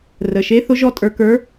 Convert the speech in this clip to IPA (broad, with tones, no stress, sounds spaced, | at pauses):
r ə˨˩ ʃ e˧˥ θ ʊ˥ ʒ ɔ˥ tʼ ə˞˧ k ə˞˧˥